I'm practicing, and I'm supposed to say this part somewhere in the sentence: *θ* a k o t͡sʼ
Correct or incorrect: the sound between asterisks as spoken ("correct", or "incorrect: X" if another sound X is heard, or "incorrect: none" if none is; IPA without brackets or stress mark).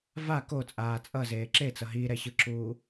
incorrect: v